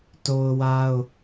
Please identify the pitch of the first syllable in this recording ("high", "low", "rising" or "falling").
high